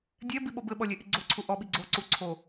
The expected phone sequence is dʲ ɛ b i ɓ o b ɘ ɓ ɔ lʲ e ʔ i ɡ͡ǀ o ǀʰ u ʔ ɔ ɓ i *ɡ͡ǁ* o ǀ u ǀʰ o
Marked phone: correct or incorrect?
incorrect